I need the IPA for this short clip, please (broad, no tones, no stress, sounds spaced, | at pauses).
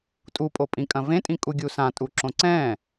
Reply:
tʼ u pʼ o pʼ ĩ kʼ ɐ̃ v ẽ tʼ ĩ kʼ u ɡʲ u s ã tʼ u ǁ õ ǀ ɛ̃